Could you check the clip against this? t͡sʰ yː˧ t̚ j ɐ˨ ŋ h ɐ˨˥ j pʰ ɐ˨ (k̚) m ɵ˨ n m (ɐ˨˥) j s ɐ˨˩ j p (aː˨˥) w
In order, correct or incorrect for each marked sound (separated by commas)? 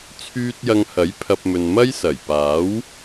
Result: incorrect, incorrect, correct